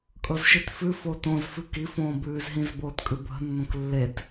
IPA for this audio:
kʼɤzʃitfʉ fotõz fʉki fõːbʉːzɦĩz boːtkʼʉbʱə̤ nːõklːet

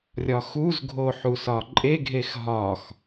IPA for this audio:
rʲɒxuzɡʱo ħusɒǃʼeɡʱex ɦɒx

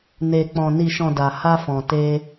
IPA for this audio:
ne˨ k͡pɔ̃˨ ni˨ʃɔ̃˨ da˨ ha˧fɔ̃˨ te˧

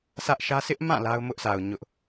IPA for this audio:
sʰä˦ʔʃä˦ sɪ˦ʔmã˦˨ la˦ʊ̯mʊ˦ʔsʰa˨ʊ̯ ɲʊ˦ʔ

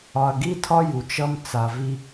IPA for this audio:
ɒ˨ɐ̯ɡi˦tʰɒ˦ ju˨t͡ʃʌ˦mt͡sa˨ vi˦

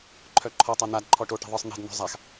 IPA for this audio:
ǃʰœǃʰɔtˤa n̪adǃʰɔ ʈo ʈɛ̤ðˤə˞sˤn̪ɛ̤dn̪ɔ̤ zˤax

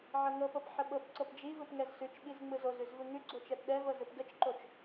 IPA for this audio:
ʕɤŋɤpɤp ħəɓɤpǀɤp d͡ʒivɯp ŋɛzsʉt͡ʃɓiz ŋ͡mɯzozʉz vɯŋʉɡ͡ǀo t͡ʃɛpɗɛvɤ zɯpɡət͡ʃǃot͡ʃ

